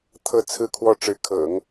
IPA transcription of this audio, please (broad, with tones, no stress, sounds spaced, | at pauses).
t̪ʰ ɤ˥˧ t͡sʰ ɹ̩˥˧ kʰ w ɔ˥˩ ʈ͡ʂ ɻ̩˧˥ kʰ ɤ̰˨˩˦ ŋ